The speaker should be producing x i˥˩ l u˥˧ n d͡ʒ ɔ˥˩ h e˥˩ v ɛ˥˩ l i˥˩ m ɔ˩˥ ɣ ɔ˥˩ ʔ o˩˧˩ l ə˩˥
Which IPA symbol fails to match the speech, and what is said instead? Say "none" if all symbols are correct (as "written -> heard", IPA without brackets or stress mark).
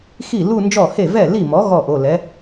ə˩˥ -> ɛ˩˥